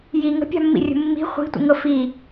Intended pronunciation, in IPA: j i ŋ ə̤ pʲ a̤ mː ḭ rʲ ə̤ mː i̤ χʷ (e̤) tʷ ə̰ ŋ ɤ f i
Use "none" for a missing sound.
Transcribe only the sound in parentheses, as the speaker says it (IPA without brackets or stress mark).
i̤